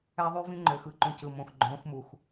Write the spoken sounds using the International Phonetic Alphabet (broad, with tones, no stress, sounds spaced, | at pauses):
æ˦ ðˤ y˦ v ĩ˦ ŋ͡ǃ ø˨ x ɯ˨˦ ǃ ũ˨ c ɯ˨ m õ˨ x ɡ͡ǃ õː˨˦ x m u˨ x